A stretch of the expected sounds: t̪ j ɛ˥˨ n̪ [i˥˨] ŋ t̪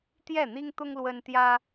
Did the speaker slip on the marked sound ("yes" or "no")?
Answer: yes